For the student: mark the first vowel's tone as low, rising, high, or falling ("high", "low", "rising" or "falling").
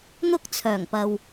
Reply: high